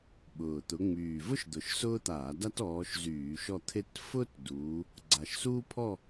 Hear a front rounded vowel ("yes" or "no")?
yes